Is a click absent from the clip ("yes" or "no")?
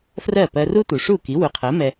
yes